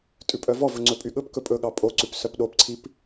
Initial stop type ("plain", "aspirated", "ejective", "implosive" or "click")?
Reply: ejective